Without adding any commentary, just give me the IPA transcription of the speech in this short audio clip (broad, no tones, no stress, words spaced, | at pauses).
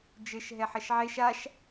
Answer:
d͡ʒɘʃ ɦɛħɐʃʕeʃ aʃ